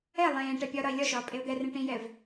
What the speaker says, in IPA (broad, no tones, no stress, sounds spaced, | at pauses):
ɛ lˠ ẽː ʈ ɛ pʲ ɒ ɾ ɒ ɪ̯ lʲ ɒ ʃ ɒː pʼ e ʊ̯ d̪ ɛ r ẽ ʈ ĩ j ɛ v